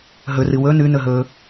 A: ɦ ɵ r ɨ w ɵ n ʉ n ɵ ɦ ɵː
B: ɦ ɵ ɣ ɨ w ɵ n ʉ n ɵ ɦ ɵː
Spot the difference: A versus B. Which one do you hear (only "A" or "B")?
A